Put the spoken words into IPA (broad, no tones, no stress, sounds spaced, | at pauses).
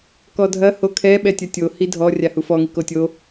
k ɔ dʱ ɐ h o kʰ ɛ ɓ ɛ tʲ ɐ tʲ o h i dʱ ɔ rʲ a h u f ɔ ŋ i k o tʲ o